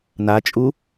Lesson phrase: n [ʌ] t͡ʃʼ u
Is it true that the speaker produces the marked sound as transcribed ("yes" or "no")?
no